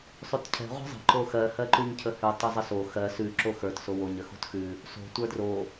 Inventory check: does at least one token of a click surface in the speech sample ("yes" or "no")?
yes